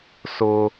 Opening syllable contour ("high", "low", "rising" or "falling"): high